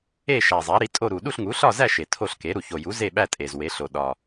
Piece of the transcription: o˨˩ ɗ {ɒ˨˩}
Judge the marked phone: correct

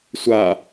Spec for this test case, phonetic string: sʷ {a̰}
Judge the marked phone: incorrect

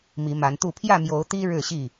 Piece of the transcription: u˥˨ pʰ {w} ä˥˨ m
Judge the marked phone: incorrect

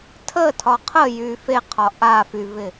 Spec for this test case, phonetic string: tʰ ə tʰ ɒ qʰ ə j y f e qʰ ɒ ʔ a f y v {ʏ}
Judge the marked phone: incorrect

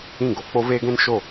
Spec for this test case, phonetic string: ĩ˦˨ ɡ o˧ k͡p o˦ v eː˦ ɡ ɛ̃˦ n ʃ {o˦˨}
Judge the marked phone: correct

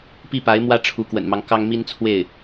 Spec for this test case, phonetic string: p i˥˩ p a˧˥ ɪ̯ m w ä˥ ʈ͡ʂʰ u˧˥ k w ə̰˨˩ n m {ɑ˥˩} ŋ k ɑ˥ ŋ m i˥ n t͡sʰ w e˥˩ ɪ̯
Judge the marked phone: incorrect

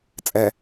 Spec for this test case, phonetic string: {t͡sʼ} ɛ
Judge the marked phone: correct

